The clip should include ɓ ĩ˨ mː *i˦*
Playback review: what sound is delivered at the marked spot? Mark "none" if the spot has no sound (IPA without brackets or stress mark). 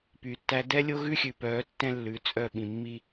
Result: i˦